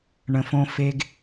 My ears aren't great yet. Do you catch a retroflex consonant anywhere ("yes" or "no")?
yes